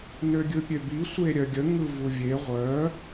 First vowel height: mid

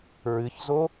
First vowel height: high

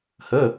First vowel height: mid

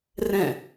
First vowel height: mid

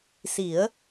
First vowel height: high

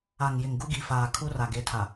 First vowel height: low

